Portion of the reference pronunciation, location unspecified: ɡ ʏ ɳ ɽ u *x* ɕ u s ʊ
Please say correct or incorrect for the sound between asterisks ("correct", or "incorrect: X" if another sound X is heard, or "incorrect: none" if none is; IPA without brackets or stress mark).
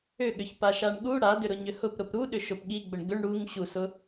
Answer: incorrect: ŋ